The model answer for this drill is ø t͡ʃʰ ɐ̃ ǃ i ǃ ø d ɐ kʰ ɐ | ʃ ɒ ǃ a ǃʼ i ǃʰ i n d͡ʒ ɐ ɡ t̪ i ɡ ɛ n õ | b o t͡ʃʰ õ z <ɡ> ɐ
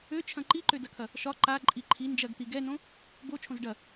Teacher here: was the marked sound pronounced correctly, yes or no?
no